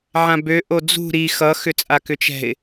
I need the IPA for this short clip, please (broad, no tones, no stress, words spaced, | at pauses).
ʕãbø ʔod͡zṳ ɾi xʌ xʏt͡sʼakʏt͡ʃɛ̤ɪ̯